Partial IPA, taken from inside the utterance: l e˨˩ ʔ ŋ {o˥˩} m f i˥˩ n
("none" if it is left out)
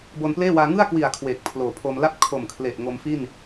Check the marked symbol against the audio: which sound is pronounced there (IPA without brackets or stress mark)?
o˧